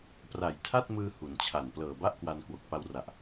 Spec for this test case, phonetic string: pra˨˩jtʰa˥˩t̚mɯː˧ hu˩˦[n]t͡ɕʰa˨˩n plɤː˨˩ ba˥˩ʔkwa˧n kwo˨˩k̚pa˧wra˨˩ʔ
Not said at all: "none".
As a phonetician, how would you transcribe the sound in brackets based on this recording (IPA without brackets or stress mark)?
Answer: n